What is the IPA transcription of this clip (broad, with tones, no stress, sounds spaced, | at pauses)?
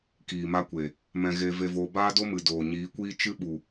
k iː˨ m a˧ kʷ e˨ | m ɛ̃˧ ɣ eː˧ v e˧ v oː˧ b aː˦ d o˦ m ɨ˨ d oː˨ ɲ iː˨˦ kʷ iː˦ t͡ʃ ɨ˦ ɓ u˨